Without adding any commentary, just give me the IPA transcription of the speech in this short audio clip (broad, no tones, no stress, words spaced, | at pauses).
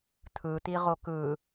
t̪ʰɯt̪iʁo kɯ